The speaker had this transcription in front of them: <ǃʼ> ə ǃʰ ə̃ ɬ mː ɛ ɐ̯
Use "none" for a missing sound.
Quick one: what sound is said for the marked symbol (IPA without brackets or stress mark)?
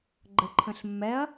ɡ͡ǃ